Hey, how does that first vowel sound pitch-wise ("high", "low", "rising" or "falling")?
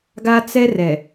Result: high